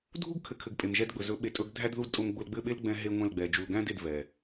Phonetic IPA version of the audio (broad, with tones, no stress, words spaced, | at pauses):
dʱu˦ɡkʰɘ˨kʰɘ˨ɡ pʼe˨mʒɛ˦dɡ͡bɵ˨ zɵ˨˦ɓe˨tʼɵ˨˦ɡdʱæ˦d ðu˦d tʼʊ˨mɡ͡bʊ˨lɡ͡bɘ˦˨ɓe˦l ɡ͡bɛ̃˦ɦe˦ŋʷɛ̃˦˨lɡ͡bɛ˨ d͡ʒu˨lɡæ̃˦de˨d vɛ˨